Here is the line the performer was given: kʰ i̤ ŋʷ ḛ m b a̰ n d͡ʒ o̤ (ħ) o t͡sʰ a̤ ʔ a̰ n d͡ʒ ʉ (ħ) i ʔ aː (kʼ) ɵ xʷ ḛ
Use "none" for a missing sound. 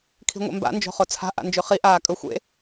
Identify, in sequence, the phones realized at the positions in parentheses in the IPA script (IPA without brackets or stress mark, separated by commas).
χ, χ, kʼ